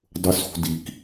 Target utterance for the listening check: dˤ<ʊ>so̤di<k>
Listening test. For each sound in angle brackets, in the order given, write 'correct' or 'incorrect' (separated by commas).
correct, correct